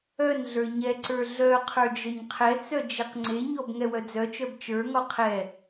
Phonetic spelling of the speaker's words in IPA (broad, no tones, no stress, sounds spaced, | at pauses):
œ n ɮ ə˞ ɲ ɛ ǀ ə˞ ɮ œ qʰ ə˞ d͡ʒ œ ɲ qʰ ɛ t͡s œ d͡ʒ e q ŋ͡ǀ e ɲ ɔ b ŋ ɛ w œ d͡z œ t͡ʃ œ b t͡ʃ ə˞ ŋ ɔ qʰ ɛ